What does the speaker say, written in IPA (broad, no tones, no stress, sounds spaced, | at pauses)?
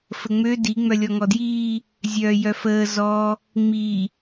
f ə ŋ͡m ø d i ŋ͡m œ lʲ ɔ ŋ ɔ d j iː | zʲ œː j œ f əː z ɔ | ŋ͡m i